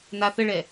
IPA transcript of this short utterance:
naθəɭɛ

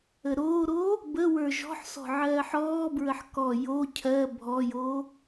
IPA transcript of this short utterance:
əɾoːɾoː | bəwə˞ ʒɔ̤ħsɔ̤ ʕɜːħɔːbɹəħ kɔ jo cʰɜ bʱɔjoː

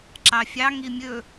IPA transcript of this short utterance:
ǁɑfʲɑ ŋimʲɵ

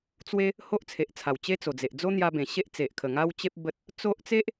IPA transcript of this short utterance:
t͡swe˦ | ho˦ʔt͡sʰe˨ʔt͡sʰa˨˩w t͡ɕe˦t͡so˨˩d͡ze˨ʔ d͡zo˦n̪ja˧bẽ˨˩ ɕe˦ʔt͡se˨ʔkʰə˨˩ ŋa˦wt͡ɕe˦p̚ bə˦t̚ | t͡so˦ʔ t͡se˦ʔ

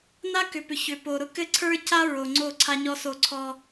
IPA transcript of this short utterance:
na˦kʏ˨pʏ˨ çʏ˨po˨ɾʊ˦ kɘ˦ǀʰə˞˦ca˦ ɹo˨ŋ͡ǀo˦˨ ǀʰa˦ɲɔ˦so˦ ǀʰɔ˦

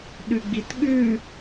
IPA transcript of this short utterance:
ɗʉɡ͡bitɠʉ

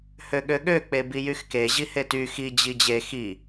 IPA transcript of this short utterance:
høɠøɠø k͡pebijyxke ʑihety xi d͡ʑid͡ʑe xi

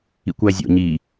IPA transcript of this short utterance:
ḭkʷæzʲo̰ ɲi

